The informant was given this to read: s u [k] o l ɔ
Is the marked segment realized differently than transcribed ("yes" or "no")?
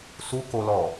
no